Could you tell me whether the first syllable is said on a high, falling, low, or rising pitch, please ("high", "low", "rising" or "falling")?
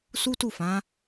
high